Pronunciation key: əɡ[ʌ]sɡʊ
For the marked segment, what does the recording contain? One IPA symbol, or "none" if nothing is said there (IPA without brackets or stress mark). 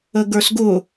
ə˞